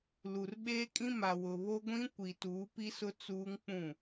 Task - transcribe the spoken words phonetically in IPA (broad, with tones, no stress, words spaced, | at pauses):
lu˨r ɓeː˦kʼĩ˦ ma˨wʊ˨βo˦ɡʷĩ˦ kʷi˨tuː˨˦pi˦sʊ˦ t͡suː˦ŋk͡pũ˦˨